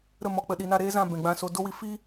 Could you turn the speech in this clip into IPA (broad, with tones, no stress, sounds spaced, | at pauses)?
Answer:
ɾ ə˦˨ m ɔ˨ k͡p ə˨ ɗ i˨ n a˦˨ ɾ eː˦ z ã˦˨ b ɛ̃˨ ɡ͡b ã˧ s o˧ d o˦ w i˧ f i˦